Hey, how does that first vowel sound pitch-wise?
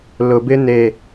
low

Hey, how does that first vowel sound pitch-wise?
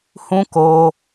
high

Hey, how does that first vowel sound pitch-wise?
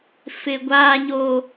high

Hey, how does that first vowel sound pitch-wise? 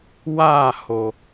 falling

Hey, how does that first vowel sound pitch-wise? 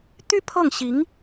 high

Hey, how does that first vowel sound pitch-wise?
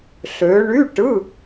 rising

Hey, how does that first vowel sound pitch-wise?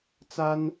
high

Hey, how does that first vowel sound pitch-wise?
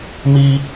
high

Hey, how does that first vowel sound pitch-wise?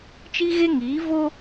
high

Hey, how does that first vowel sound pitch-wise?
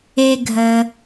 low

